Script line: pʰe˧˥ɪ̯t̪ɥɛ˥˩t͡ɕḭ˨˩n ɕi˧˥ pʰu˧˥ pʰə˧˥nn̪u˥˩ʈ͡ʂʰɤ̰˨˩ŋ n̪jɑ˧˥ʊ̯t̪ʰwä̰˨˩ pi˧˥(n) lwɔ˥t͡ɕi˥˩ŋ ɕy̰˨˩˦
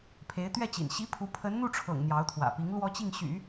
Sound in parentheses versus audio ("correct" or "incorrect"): incorrect